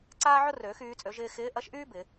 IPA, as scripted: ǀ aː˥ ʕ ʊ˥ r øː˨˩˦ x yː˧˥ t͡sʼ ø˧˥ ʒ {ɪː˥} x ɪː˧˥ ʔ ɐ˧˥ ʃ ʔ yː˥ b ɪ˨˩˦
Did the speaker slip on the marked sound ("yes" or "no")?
no